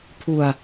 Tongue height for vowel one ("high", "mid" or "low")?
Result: high